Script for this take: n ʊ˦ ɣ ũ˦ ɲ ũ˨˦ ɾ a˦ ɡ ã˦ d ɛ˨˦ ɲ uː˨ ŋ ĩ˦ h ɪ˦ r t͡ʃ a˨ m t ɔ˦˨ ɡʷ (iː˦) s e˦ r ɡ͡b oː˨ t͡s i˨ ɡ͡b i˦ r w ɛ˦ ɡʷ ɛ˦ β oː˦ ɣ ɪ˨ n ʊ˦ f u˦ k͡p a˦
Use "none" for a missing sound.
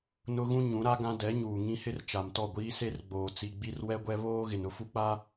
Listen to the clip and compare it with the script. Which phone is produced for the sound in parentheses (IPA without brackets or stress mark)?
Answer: iː˦